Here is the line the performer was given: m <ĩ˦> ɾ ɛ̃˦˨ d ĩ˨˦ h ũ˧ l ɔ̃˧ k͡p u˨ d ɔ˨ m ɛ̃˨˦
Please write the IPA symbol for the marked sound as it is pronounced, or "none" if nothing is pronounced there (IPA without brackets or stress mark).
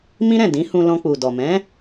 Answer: ĩ˦